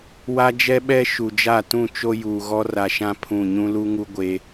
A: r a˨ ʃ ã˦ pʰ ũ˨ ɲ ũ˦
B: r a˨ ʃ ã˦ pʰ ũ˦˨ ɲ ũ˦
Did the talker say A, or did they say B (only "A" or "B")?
B